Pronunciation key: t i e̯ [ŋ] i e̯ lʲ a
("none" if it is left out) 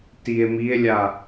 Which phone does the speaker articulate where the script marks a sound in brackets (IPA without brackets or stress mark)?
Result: m